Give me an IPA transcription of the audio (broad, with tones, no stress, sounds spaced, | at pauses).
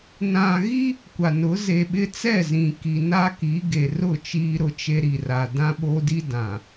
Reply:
n ã˨ ɣ i˦ | kʷ a˨ n ʊ˨˦ z e˨ ɓ ɪ˦ t͡s ɛ˦˨ z ĩ˨ k i˨ n a˦ k i˨˦ ɡ e˨ r ʊ˦˨ t͡ʃ iː˦ ɾ ʊ˦ t͡ʃ e˦ ɾ i˨ r a˨ d ã˦ ɓ o˦ d i˦ d ã˨